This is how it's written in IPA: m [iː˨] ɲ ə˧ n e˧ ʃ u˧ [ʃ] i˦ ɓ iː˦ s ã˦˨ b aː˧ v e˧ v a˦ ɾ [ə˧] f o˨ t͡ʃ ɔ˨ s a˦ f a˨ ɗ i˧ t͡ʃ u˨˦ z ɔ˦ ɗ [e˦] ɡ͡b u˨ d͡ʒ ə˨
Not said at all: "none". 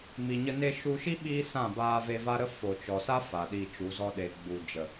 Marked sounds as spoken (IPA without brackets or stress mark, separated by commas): i˨, ʃ, ə˦, e˨